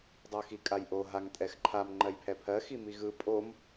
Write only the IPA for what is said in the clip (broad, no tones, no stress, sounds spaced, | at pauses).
dˤ ʉ x i kʼ a j ʔ o ɦ a ŋ tʼ ɛ x ǃʰ a m ŋ͡ǃ ɜ j pʰ ɛ pʰ ɜ x i m i ɣ ɯ pʼ o m